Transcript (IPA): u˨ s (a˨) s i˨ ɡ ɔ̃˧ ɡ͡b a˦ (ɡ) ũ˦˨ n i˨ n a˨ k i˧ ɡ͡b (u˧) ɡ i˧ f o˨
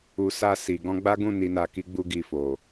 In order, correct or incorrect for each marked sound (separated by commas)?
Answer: correct, correct, correct